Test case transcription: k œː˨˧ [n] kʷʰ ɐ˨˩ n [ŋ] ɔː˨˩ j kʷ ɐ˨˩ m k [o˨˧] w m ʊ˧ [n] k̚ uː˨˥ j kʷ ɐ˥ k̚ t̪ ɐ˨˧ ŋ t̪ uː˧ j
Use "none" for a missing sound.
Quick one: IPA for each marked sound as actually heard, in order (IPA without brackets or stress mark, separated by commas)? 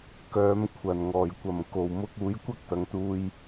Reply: m, ŋ, o˨˩, none